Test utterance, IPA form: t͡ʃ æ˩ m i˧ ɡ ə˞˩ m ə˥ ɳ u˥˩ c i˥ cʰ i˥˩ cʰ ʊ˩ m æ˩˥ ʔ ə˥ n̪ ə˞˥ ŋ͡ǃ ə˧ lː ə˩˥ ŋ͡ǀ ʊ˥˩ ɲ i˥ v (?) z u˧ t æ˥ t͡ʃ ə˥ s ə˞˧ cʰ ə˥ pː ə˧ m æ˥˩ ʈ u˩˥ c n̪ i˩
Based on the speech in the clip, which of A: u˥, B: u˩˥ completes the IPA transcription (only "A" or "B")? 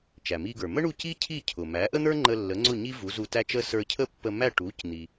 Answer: B